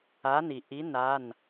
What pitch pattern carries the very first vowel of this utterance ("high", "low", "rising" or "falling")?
rising